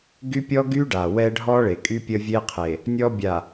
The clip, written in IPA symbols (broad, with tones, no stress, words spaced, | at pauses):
ɡy˦pʲɔ˦ ɡy˦ɖa˨ wɛ˦ɖʱɔ˦ɭe˨kʼy˦ pʲə˦vʲe˦qʰe˨ | nʲɔ˦bʲa˨